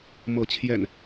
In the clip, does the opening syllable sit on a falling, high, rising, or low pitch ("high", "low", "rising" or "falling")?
rising